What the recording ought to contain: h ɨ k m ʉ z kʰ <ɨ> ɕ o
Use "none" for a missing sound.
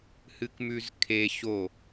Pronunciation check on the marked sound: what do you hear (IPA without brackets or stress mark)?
e